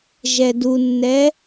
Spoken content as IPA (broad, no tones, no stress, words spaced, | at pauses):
ʒɛdunːɛ